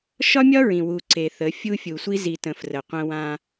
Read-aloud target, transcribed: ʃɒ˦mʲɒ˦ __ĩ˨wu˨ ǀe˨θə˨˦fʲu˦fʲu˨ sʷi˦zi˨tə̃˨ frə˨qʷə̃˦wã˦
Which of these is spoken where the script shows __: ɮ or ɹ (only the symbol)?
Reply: ɹ